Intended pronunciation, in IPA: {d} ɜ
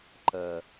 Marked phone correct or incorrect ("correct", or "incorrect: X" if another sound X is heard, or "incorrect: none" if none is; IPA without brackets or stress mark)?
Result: incorrect: ǃ